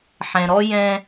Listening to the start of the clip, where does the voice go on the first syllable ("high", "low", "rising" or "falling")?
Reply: low